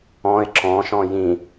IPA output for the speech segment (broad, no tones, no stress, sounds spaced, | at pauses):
ɔ̃ ɪ̯ ǁ ɔ̃ ʃ ɔ̃ j ĩ